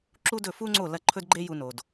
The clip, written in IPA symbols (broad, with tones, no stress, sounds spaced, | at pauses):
ǁ u˥ d ɵ˥˩ f u˥ ŋ͡ǀ o˥˩ l ɐ˧ ǃʰ ɵ˥ d ɡ͡ǃ e˥ j u˧ n o˩ d